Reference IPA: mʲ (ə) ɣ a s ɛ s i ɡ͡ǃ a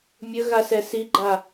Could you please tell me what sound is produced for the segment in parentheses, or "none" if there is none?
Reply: ə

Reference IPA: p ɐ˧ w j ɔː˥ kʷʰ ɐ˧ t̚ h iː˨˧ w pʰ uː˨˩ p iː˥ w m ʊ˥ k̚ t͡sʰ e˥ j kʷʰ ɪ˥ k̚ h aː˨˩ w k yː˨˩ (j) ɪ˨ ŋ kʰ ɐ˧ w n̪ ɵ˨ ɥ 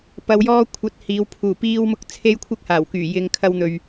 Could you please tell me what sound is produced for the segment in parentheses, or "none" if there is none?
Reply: j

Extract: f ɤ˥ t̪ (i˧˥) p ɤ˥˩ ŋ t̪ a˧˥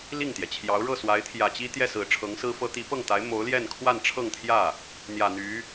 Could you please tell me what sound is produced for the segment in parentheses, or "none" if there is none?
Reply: i˧˥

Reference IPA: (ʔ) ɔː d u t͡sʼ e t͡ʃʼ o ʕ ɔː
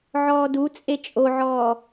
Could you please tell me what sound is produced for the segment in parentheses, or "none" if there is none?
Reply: ʕ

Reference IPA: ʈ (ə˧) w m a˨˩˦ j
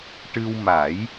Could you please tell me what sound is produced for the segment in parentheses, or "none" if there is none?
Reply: ɨ˧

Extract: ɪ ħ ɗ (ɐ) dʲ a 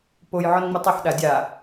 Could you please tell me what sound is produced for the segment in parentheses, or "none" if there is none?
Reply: a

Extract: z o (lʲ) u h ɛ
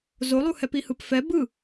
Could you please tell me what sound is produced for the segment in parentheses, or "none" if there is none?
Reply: lˠ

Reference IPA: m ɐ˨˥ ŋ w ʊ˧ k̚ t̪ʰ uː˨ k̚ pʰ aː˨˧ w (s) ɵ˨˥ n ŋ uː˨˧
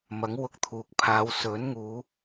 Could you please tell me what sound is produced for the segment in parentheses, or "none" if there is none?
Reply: s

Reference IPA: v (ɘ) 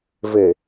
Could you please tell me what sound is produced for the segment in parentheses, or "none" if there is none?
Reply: ɘ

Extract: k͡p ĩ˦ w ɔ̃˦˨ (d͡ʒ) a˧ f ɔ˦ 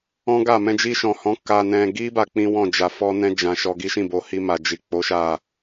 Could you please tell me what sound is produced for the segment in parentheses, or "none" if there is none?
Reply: d͡ʒ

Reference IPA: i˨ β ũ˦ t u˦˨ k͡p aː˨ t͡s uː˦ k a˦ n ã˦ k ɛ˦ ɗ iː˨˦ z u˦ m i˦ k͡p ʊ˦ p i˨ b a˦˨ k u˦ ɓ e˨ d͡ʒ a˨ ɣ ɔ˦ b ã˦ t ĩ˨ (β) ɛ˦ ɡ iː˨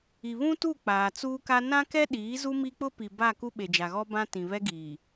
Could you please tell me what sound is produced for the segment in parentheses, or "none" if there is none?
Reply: β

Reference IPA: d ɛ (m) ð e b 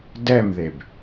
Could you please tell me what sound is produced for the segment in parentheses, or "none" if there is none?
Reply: m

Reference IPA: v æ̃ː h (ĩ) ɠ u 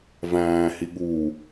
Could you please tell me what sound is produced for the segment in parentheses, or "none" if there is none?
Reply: i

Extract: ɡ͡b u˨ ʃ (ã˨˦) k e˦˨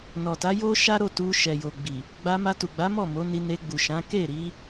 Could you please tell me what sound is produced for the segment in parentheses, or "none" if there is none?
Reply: ã˨˦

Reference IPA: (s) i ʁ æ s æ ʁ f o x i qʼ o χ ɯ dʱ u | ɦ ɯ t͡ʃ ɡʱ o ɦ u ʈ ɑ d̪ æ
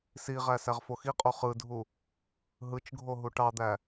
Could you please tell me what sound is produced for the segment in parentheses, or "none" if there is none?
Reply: s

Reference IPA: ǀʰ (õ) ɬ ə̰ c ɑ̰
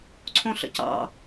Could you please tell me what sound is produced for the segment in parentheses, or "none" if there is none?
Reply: õ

